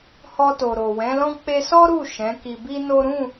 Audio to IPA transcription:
h ɔ˧ t o˨ ɾ o˨ w ɛ̃˨˦ l ɔ̃˦ k͡p e˧ s ɔ˦ ɾ u˦˨ ʃ ɛ̃˨˦ k i˧ b i˦ n o˦ ɾ ũ˦˨

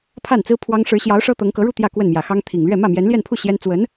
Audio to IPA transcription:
pʰ a˥˩ n t͡s ɹ̩˥ pʰ w ɑ˥ ŋ ʂ ɻ̩˧˥ ɕ j ɑ˧˥ ʊ̯ ʂ ɤ˥ t̪ ɤ˧˥ ŋ k ɤ˧˥ ɻ u˥˧ t̪ j ä˥˧ k w ə˥˩ n m j ä˨˩ x ɑ˥ ŋ t̪ʰ i˨˩ ŋ l ɥ ɛ˥˧ m ä˥˩ m j ɛ˧˥ n l j ɛ˥˧ n pʰ u˥˩ ɕ j ɛ˥ n t͡s w ə˧˥ n

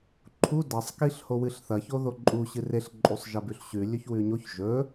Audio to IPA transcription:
ǃʰ u d ɐ sˤ k i ɬ h o w ɨ ɬ θ ɐ ç o ð o ǃʼ u ɕ ɨ r e ɬ ǃʼ u sˤ ʒ ɐ b ʉ ɬ ɕ ʉ lʲ ɵ ç w ʉ ɲ o ç ʒ ɵ

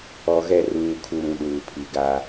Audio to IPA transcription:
ɔ˨ ɣ ɛ˦˨ r uː˨ kʰ u˨ ɾ ũ˨ ɗ uː˨ pʰ i˨ ɡ a˦

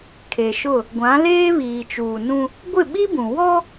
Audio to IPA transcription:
kʰ e˨ ʃ ʊ˦˨ | ɡʷ ã˨˦ l eː˦ β iː˨ t͡ʃ uː˨ n ũ˦ | ɡʷ ɪ˦˨ ɓ i˦ b ũ˨ w ɔ˦

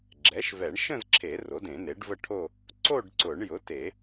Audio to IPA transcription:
ɡ͡ǁ ɛ˩˥ ʃ v ɛ˨˩˦ ɳ ʃ ə̃˥˧ z ǁʰ e˨˩˦ r o˩˥ d ẽ˨˩˦ n e˩˥ ɖ v ə˥˧ ʈʰ o˥˧ | ǀ o˥˧ ɖ ǀ ʊ˨˩˦ ɳ j ʊ˩˥ t e˨˩˦

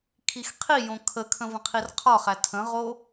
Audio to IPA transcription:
kʰ i x qʰ i j õ kʰ ə kʰ ə̃ v ə̃ qʰ i r qʰ ɒ χ æ tʰ ə̃ ʁ o

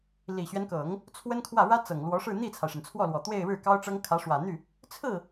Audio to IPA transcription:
l i˨˩ ɕ ɥ ɛ˦ n k ɤ˨˩˦ ŋ | t͡sʰ w ə˥ n kʰ w ä˥˩ ɻ ä˥ t͡s ɤ˨˩ ŋ l w ɔ˧˥ ʂ ɻ̩˥˧ n̪ i˥˩ t͡sʰ a˩ ɪ̯ ʂ ə˩ n t͡sʰ w ɔ˥˩ l w ɔ˨˩ t̪ w e˥˧ ɪ̯ ɻ ɻ̩˥˩ k ɑ˥ ʊ̯ ʈ͡ʂ ɤ˥ ŋ kʰ ä˧˥ ʂ w ä˨˩ n̪ y˥˩ | t͡sʰ ɹ̩˥˩

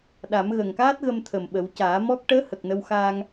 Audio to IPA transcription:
ɗ a˨˩˦ m ɣ əː˨˩ ŋ k aː˦˥ t̚ ɣ ə˧ m t̪ʰ ə˨˩ m ɓ ə˨˩˦ w c aː˨˩˦ m ɔ˦˥ k̚ ʈ əː˧˥ h ə˨˩ k̚ n ə˧ w x aː˧ ŋ

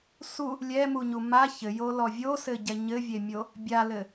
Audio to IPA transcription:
s u | lʲ ɛ m u ɲ u m a ç ɘ j o l ɔ vʲ o s ɘ ɟ ɛ ɲ ɘ vʲ e mʲ o | bʲ a l ɘ

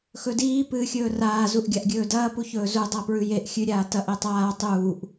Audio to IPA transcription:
x ɵ d iː p ɨː xʲ ɵː r aː z u ʔ ɡʲ a ʔ ɡʲ ɵː d ɐː p u ç ɵː z u dˤ a p ɹ ʉ j e ʔ xʲ ʉ ɾʲ aː t ɐ ʔ e tˤ aː tˤ uː ʔ

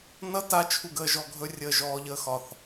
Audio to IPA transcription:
n ʌ t a t͡ʃʰ u ɡ əː ʒ ɔ ɡʱ ɵ rʲ əː ʒ ɔː ʎ əː x ɒ θ

